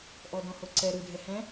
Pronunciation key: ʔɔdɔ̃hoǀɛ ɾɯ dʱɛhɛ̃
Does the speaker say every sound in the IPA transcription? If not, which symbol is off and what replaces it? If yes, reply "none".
none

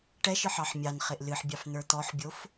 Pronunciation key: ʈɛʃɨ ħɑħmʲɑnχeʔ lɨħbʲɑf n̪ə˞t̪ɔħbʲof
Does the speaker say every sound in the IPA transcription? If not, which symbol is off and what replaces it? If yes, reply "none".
none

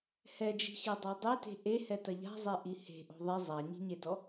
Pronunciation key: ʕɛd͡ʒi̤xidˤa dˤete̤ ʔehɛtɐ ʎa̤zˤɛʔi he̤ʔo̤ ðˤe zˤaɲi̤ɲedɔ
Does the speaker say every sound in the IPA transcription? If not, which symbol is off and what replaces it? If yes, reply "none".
ʕ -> h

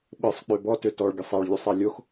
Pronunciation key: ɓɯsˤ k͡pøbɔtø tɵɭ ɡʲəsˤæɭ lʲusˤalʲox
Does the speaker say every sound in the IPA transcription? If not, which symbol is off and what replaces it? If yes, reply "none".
ɵ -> ɔ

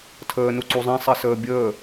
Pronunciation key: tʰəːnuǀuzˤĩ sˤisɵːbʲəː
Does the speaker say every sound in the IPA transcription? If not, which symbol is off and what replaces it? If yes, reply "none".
ɵː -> əː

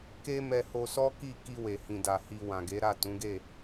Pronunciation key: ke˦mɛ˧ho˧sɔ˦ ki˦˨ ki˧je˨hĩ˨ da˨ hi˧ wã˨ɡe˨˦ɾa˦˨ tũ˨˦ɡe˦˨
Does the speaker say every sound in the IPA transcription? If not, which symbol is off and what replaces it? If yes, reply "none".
j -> w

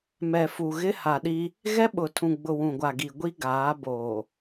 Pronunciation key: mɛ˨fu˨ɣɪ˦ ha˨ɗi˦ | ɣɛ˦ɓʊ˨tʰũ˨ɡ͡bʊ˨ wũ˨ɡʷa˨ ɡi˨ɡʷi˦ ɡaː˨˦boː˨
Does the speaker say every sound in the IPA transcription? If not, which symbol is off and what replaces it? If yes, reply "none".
none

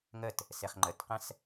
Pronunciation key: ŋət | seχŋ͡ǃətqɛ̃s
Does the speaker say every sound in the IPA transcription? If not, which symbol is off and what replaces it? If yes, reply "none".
none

